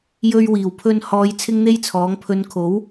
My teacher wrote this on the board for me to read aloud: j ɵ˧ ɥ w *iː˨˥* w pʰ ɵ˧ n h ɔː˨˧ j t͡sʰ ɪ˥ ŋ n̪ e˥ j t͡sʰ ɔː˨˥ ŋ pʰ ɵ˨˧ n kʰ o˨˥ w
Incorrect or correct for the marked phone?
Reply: incorrect: iː˨˩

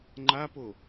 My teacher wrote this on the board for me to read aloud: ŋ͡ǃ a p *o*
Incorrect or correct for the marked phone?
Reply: correct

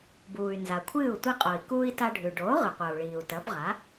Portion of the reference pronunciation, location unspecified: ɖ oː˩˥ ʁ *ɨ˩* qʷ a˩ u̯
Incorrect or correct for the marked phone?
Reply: correct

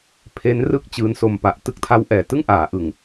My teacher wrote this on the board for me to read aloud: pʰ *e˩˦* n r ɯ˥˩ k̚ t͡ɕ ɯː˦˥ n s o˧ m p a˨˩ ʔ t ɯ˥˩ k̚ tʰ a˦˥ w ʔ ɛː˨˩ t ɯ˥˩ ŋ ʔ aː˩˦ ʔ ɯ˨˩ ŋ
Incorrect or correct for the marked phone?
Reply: incorrect: e˦˥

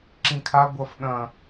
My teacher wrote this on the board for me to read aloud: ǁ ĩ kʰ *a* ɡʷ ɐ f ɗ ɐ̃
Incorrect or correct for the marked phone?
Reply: correct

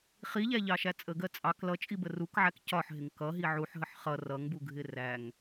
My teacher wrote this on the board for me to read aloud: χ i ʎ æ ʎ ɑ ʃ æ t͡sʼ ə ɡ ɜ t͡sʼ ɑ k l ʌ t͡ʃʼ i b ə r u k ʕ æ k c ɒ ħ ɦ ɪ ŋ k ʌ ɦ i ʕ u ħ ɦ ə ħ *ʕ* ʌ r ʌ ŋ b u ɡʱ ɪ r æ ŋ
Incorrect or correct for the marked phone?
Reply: incorrect: χ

